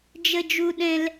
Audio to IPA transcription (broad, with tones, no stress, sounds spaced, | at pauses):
d͡ʒ ə˧ d͡ʒ u˧ ɗ ɛ̃˧ l